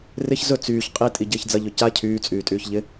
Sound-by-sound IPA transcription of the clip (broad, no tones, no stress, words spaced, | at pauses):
rɪç zɵ t͡syːç qʼitʼi ɟɪːçd͡zɐʎɵ ca cʰyːt͡sʼyːtʼyːç ʎɪ